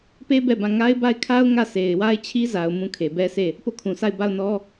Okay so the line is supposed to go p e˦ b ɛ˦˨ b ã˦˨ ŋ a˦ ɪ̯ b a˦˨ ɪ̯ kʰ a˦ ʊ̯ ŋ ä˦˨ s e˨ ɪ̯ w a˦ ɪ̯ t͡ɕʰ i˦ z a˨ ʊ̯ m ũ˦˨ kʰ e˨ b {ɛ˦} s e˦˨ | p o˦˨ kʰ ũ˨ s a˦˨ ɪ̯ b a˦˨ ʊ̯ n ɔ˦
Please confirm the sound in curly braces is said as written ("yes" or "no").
yes